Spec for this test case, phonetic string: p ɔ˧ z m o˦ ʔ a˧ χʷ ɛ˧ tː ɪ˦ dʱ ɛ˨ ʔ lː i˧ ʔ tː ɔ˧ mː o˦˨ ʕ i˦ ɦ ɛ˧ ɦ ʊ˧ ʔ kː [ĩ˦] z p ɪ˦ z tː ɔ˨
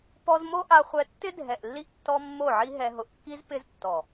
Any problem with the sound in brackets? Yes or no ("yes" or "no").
yes